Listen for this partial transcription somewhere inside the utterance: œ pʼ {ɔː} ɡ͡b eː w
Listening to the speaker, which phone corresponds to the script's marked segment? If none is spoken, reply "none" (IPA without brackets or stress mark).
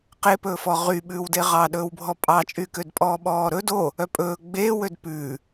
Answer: ɵː